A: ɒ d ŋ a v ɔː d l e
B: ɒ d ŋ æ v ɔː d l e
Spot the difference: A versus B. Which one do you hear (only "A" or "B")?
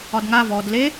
A